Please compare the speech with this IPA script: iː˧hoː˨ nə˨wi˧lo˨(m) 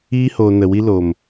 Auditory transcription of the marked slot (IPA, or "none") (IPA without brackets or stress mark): m